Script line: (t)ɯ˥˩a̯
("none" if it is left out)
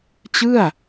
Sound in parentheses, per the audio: t͡ɕ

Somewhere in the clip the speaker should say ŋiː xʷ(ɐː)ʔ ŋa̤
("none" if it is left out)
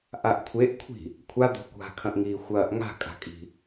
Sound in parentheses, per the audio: ɐː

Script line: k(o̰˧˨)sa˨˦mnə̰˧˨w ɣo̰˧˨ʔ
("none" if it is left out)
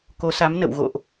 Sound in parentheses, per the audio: o˨˦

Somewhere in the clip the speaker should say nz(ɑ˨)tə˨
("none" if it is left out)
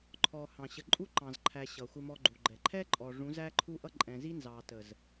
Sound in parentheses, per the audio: ɑ˨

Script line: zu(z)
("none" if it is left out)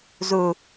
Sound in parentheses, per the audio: none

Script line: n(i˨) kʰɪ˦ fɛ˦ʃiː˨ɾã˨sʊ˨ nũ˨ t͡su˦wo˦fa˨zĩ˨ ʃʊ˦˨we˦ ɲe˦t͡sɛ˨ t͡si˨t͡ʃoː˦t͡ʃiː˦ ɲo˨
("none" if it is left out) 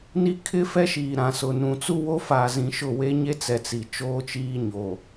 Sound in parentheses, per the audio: i˦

